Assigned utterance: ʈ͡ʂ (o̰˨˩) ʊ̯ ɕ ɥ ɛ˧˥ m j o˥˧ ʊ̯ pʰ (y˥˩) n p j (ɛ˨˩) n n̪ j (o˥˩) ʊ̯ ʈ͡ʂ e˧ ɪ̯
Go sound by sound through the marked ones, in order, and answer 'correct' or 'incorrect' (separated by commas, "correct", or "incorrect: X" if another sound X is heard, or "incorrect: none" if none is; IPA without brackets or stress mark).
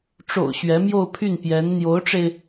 correct, correct, incorrect: ɛ˧˥, incorrect: o˧˥